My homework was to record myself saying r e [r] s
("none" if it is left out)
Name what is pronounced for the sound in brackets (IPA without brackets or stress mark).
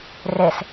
none